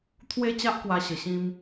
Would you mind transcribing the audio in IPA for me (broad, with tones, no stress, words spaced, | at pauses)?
t̪ʰwe˦ t͡ɕa˦ʔkwa˧ɕə˨˩ɕĩ˧m